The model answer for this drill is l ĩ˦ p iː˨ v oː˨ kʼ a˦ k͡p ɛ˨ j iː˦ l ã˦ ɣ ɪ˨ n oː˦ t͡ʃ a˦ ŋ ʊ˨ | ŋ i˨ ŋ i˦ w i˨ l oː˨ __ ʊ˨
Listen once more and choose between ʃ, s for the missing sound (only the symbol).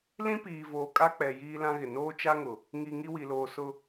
s